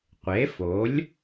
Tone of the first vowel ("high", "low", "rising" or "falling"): rising